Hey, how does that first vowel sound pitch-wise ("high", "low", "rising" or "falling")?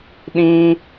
high